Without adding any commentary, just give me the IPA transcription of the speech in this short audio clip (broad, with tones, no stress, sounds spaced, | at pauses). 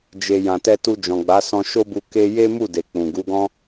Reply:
d͡ʒ e˨ j ã˨ t ɛ˧ t u˧ d͡ʒ ɔ̃˨ ɡ͡b a˨˦ s ɔ̃˧ ʃ o˦ b u˧ k e˦ j e˦ m u˦˨ d e˨ k͡p ũ˨ ɡ u˨˦ ɡ ɔ̃˦